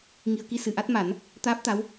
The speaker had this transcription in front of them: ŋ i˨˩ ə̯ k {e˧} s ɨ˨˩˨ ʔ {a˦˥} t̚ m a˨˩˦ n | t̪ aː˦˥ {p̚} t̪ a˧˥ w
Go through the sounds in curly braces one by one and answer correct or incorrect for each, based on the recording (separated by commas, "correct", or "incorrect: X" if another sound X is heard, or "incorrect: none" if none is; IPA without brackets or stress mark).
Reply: incorrect: i˧, correct, correct